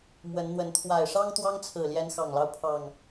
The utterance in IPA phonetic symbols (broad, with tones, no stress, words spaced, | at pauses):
mwə˨˦nn̪wə˨˦n t̪ʰwa˨˩ɪ̯ʂɑ˦ŋ t̪wɑ˦ŋt͡sʰɹ̩˨˩ljɛ˨˦n xɑ˨˩ŋlɑ˦ʊ̯ pʰɑ˨˩ŋ